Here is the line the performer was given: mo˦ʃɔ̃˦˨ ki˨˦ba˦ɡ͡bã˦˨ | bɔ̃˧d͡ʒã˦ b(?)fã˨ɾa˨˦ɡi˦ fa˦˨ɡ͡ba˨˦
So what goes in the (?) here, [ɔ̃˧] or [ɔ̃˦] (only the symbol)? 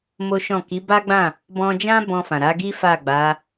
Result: ɔ̃˧